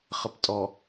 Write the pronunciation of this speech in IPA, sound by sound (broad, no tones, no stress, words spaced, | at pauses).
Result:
χəptʼɔ